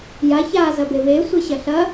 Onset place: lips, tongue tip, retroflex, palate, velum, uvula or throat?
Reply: palate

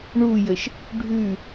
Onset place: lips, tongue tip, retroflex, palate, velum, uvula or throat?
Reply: retroflex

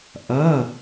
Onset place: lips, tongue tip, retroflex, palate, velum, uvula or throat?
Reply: throat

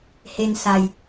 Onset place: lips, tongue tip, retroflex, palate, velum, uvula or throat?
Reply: throat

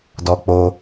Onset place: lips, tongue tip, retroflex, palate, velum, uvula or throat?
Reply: tongue tip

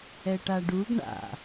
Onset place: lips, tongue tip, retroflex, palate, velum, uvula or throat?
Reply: retroflex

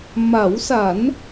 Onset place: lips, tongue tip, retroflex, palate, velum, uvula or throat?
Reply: lips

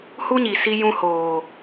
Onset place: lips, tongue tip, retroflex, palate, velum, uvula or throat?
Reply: throat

